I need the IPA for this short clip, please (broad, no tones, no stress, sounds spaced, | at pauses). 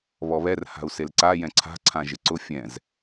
β ɔ β ɛ r h a̤ u̯ s e l ǀ a j ɛ̃ ǀʰ a̤ ǀʰ ã ʒ ɪ ǀ ʊ fʲ ɛ̃ z